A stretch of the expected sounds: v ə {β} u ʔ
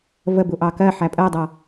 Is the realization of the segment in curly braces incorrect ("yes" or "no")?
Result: yes